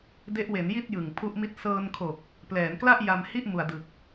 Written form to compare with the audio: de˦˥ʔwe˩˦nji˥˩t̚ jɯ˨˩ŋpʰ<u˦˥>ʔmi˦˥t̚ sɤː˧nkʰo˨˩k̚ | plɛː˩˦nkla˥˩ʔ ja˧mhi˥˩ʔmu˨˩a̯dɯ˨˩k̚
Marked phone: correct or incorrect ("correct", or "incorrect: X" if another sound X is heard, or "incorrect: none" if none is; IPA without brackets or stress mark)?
correct